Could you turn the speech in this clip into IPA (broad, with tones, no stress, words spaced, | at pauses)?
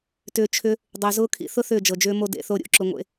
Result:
tʏː˧t͡ʃʰʏ˦ | dˤʏː˨zʊː˦kʰḭ˧ θʊ˦ θʏː˦˨d͡ʒɤ˨d͡ʒʏː˦ mo˦dḛ˨˦θo˦ ɾʲo̰˦˨ǁʊ˧ŋʷḛ˧